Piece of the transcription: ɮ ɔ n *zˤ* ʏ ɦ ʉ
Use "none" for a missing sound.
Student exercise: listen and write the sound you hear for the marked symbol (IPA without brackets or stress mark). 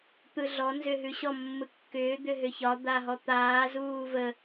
z